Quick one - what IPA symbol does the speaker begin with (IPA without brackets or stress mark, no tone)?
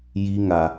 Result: j